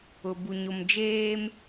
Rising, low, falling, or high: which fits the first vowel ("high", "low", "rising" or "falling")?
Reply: low